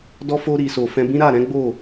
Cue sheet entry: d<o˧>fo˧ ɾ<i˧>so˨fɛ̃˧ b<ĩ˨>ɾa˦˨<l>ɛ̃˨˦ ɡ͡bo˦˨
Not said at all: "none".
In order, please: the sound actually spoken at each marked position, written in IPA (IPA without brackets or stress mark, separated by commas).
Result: ɔ˧, i˨, ĩ˦, ɾ